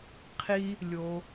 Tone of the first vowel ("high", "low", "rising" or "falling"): high